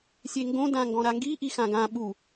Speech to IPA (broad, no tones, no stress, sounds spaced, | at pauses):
sʲ e ŋ ɡ õ d ã ŋ ɡ ɔ̃ ɾ a ŋ ɡ i ʔ i x ã ɡ ã ɓ u